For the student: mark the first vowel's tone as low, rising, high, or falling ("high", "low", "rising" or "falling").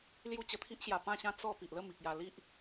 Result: high